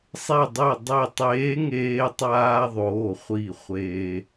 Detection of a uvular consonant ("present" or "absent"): present